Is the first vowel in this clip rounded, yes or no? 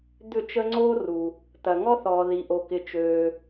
yes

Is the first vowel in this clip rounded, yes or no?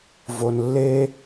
yes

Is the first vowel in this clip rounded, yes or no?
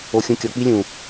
yes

